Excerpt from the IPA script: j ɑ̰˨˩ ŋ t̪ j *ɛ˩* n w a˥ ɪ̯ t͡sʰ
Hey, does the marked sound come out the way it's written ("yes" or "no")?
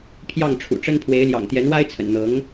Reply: no